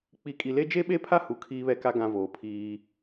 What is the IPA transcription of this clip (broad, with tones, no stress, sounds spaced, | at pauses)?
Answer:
k͡p i˨˦ kʼ i˨ l e˦ d͡ʒ e˦ ɓ e˦ pʰ a˦ h u˨ kʰ iː˦ β ɛ˦ k a˦ ɡ ã˦ v oː˨ pʰ iː˦